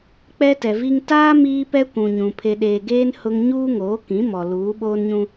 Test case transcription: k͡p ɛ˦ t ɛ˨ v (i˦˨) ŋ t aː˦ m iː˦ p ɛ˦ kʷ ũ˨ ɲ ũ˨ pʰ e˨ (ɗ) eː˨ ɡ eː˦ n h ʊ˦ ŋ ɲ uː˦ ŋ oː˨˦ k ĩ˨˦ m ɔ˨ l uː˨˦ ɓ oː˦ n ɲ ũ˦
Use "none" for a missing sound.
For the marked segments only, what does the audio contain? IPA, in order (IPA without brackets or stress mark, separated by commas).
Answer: i˦, ɗ